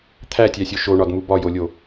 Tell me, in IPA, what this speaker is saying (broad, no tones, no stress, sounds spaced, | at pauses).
t̪ʰ æ tʲ æ sʲ o ʃ o ɳ ɒ d m u b ɒ j o lʲ o